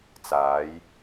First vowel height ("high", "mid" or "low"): low